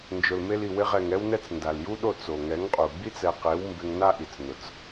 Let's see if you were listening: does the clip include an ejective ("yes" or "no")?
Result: yes